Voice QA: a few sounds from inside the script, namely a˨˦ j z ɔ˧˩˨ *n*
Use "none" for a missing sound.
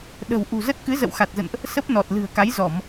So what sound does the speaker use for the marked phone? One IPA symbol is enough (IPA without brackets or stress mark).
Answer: m